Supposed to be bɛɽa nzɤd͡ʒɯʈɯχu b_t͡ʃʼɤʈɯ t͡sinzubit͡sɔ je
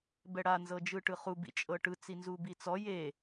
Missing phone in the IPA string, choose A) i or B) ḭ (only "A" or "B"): B